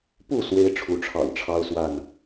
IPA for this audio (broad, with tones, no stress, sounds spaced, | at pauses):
p u˥˨ s w e˦ ɪ̯ ʈ͡ʂʰ u˨˦ ʈ͡ʂʰ ɑ̰˨˩ ŋ ʈ͡ʂʰ ɑ˦ ʊ̯ s w a˥˨ n